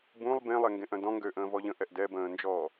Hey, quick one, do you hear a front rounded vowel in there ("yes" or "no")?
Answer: yes